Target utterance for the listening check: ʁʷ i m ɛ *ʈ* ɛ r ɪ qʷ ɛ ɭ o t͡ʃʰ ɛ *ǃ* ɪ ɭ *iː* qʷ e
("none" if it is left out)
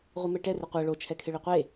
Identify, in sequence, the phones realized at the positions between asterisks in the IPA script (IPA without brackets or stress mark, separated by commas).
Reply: ʈ, kʰ, i